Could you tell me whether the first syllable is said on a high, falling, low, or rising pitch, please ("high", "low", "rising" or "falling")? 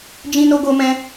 high